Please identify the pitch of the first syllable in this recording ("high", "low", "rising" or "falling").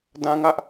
high